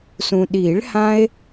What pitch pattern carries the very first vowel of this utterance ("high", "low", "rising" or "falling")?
low